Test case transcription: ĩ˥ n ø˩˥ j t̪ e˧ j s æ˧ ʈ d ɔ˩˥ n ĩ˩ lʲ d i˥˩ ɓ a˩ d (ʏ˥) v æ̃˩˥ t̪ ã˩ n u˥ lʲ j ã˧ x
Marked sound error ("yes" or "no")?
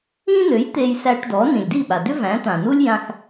no